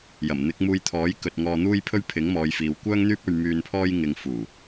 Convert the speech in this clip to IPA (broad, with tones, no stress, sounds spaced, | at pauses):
j ɐ˨˩ m n̪ ɪ˨˥ k̚ m uː˧ j t̪ʰ ɔː˨˥ j k ɵ˨ t̚ ŋ ɔː˧ n̪ uː˥ j pʰ ɵ˥ ɥ pʰ ɪ˨˥ ŋ m ɔː˨˧ j f iː˨ w kʷ œː˥ ŋ n̪ yː˥ p̚ ɵ˧ ɥ m yː˧ n pʰ ɔː˥ j ŋ ɪ˧ ŋ f uː˨˩